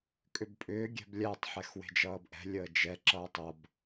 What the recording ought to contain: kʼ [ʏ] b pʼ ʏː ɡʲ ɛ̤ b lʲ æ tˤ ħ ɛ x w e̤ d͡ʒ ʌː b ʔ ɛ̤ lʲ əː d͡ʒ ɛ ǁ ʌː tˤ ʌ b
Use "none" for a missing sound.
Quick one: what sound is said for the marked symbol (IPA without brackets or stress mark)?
ʏ